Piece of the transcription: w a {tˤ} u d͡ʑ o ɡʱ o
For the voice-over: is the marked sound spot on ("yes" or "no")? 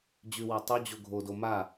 yes